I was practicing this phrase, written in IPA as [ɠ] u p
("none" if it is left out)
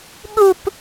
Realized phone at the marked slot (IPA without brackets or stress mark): ɠ